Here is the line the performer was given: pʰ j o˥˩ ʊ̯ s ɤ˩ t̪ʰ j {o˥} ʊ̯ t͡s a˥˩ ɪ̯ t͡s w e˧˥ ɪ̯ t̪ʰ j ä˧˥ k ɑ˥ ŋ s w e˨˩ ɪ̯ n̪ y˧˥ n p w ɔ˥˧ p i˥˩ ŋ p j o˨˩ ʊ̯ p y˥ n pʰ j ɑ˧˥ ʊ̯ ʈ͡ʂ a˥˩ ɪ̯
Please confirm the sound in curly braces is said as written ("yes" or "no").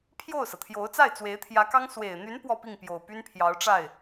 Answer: no